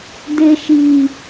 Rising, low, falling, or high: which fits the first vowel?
low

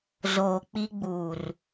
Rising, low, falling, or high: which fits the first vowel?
low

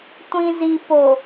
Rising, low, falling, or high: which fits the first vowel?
low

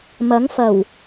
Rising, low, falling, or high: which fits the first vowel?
rising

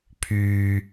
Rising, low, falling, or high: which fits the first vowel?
low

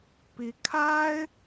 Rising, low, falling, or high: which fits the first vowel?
rising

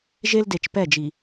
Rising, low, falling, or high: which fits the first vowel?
high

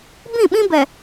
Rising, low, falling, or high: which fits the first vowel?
falling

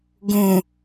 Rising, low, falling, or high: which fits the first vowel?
low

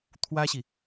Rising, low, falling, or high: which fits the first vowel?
high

